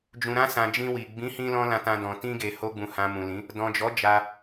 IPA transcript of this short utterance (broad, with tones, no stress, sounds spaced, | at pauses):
d͡ʒ ũ˨ ɾ ã˧ s ã˨ d͡ʒ ĩ˧ w i˨ ɡ͡b ĩ˨˦ h ĩ˧ l ɔ̃˧ l ã˧ t ã˧ d ɔ̃˨ t ĩ˧ ɡ e˨ h o˧ ɡ͡b ũ˨ h ã˨ m ũ˨ l ĩ˨˦ | d ɔ̃˨ d͡ʒ ɔ˨˦ d͡ʒ a˧